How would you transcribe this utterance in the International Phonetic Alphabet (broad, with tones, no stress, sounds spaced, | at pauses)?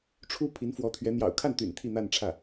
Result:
ʈ͡ʂʰ u˥ pʰ i˧˥ n f w ɔ˧˥ t̪ʰ ɥ ɛ˧˥ n̪ j ɑ̰˨˩ ʊ̯ kʰ a˥˩ n t̪ y̰˨˩ n t̪ʰ i˥˧ n̪ a˥˧ n ʈ͡ʂʰ ä˥˩